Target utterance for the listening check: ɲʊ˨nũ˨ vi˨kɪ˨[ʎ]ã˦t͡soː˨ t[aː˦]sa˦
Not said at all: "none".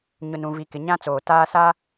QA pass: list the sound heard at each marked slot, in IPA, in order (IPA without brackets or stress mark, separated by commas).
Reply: ɲ, aː˦